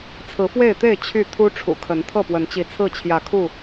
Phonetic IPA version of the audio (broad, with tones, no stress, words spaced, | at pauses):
t͡sʰɹ̩˨˦fwe˥˨ɪ̯t̪e˥˨ɪ̯ t͡ɕʰy˥˨ t̪ʰu˦ʈ͡ʂʰṵ˨˩kʰə˨˦n t̪ʰɤ˥˨pwə˨˦nt͡ɕi˨˦ t͡sʰɹ̩˥˨t͡ɕʰjä˨˦kʰu˥˨